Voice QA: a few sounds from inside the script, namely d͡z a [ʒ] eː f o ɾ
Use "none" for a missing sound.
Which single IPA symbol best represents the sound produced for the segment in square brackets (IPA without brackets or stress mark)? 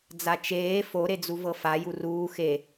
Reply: t͡ʃ